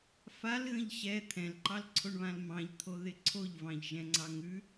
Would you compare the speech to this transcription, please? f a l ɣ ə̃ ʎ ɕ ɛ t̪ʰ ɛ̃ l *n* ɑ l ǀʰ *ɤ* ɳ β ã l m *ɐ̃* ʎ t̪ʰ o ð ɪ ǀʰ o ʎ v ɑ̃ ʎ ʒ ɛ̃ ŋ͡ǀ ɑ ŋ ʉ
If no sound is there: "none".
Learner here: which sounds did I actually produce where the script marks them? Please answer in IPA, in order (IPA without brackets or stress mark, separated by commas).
ǃ, o, ɑ̃